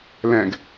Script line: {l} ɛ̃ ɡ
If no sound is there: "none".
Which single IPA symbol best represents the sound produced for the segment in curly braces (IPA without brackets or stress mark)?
l